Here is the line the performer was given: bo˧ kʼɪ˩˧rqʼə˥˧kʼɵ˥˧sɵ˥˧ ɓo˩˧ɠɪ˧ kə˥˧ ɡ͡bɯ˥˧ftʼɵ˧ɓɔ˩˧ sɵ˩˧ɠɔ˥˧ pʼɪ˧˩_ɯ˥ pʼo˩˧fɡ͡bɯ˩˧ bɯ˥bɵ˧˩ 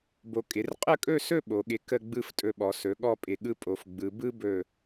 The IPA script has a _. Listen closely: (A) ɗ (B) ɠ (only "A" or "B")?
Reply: B